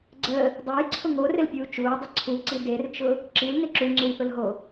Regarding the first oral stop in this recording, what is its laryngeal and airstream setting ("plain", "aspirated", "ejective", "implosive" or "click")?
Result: click